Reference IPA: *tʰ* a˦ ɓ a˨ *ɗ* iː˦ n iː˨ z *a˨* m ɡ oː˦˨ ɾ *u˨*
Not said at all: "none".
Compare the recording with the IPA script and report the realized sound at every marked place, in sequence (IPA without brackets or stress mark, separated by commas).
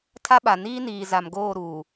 tʰ, n, a˨, uː˨